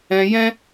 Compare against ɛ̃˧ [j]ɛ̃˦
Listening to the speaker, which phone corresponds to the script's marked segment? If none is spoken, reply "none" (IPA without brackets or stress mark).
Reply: j